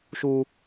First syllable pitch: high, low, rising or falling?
high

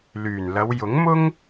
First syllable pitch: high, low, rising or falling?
low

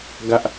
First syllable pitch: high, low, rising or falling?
high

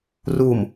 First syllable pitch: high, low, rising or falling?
low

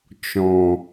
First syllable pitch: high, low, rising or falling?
low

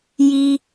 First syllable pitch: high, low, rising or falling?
low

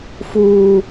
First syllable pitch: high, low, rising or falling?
high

